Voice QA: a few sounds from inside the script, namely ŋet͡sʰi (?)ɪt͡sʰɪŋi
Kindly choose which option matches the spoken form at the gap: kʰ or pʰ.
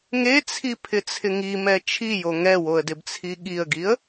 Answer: pʰ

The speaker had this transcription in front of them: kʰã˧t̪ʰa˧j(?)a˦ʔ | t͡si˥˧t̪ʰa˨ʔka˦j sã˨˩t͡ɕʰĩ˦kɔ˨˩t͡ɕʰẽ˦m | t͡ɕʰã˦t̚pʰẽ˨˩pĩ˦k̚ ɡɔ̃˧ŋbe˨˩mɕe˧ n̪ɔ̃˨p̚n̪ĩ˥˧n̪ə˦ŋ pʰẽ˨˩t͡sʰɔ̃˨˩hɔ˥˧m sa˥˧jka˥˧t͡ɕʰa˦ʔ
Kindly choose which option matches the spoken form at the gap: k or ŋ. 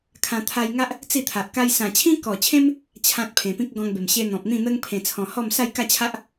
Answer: ŋ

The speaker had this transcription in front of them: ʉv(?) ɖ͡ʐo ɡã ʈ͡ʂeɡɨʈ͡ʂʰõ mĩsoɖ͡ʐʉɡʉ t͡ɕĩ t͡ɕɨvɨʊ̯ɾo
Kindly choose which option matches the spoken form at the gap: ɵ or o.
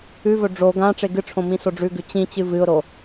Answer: ɵ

